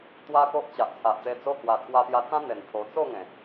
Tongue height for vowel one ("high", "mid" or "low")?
low